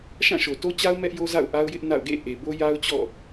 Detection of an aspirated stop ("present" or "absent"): absent